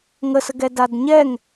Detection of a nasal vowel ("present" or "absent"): absent